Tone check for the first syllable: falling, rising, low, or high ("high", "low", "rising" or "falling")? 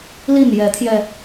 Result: falling